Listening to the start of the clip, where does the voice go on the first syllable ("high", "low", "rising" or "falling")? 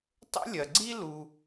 high